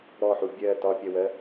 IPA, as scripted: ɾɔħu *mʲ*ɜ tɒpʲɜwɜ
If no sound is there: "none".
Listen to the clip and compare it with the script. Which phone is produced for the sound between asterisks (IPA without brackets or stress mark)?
bʲ